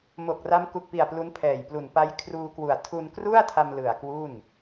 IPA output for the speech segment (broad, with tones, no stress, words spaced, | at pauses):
mo˨˩k̚ra˦˥mku˨˩k̚pi˨˩a̯ plu˦˥npʰɛː˨˩jplu˨˩n pa˦˥jkʰruː˧kwu˨˩a̯ tʰu˧nkru˥˩a̯tʰa˧m lɯ˨˩a̯kwu˥˩n